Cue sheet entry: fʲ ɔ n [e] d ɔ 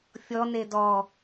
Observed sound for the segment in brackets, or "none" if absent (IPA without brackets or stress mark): e